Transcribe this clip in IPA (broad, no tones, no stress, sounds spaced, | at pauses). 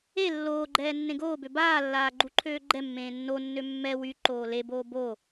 e lː oː ɡ͡ǃ ɛː nː ẽ ɡ oː b ø b aː lː aː ɡ͡ǃ u ǃʰ øː ɡ͡ǃ ɛ mː ẽː nː o nː ø mː ɛ w y ǃ oː l e b oː b o